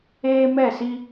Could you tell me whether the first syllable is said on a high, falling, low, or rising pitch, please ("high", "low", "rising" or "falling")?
high